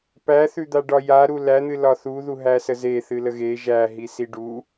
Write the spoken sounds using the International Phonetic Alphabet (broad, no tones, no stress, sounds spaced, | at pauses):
p æ θ ʉ d̪ a ɖ ɒ j a ɾ u l æ n̪ ɨ l ɒ θ u ð u ɦ æ s ə z e θ ɨ l ə ɣ e ʒ æ ɦ i s i ɖ u